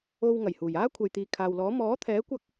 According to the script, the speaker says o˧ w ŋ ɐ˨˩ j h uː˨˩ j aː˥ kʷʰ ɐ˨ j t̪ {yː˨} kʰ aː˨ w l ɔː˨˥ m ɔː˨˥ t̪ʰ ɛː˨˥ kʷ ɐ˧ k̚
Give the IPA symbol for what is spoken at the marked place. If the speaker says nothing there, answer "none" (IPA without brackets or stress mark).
iː˨